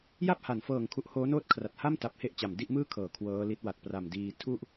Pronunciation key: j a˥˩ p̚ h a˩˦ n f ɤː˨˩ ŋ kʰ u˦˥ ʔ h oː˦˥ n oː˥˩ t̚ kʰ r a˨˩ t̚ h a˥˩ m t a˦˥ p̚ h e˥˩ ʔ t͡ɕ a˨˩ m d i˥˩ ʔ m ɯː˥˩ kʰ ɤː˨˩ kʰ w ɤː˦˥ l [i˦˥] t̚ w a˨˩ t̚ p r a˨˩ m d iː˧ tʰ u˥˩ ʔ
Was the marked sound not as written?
no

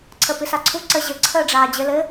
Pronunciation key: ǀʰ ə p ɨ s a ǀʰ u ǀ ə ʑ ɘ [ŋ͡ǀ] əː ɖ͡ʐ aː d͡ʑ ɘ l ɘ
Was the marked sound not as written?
yes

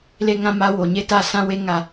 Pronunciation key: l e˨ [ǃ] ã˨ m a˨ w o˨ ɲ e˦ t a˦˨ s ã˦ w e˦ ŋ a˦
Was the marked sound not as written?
yes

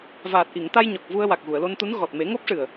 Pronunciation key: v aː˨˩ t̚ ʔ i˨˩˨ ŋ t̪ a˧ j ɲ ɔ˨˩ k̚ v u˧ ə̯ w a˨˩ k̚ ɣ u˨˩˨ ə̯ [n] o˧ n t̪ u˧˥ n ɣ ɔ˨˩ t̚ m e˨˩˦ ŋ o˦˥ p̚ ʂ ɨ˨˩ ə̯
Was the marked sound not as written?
yes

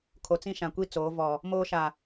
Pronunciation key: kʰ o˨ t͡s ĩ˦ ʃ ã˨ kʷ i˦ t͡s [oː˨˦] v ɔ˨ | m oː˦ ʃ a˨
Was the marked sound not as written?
no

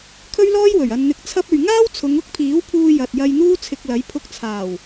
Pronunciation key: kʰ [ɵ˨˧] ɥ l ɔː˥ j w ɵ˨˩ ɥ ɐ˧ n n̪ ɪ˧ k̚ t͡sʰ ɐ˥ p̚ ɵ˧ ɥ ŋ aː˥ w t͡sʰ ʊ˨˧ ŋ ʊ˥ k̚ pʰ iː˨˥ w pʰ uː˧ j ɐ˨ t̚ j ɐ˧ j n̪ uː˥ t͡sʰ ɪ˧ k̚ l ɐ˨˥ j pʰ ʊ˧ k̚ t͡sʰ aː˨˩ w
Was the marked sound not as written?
yes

